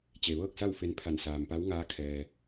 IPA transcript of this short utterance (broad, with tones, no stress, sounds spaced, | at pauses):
t͡ɕ e˩ ʋ ɤː˥˨ k̚ s a˥˨ w f e˧ n pʰ a˧˩ n s aː˩ m p a˧˥ w ŋ aː˧˥ kʰ ɛː˩